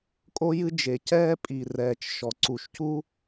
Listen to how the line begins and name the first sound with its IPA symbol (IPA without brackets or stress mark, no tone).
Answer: kʼ